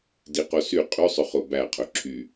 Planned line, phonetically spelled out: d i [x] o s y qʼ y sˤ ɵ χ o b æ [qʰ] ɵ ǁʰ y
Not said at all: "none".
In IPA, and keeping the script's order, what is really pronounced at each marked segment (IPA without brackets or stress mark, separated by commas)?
q, qʰ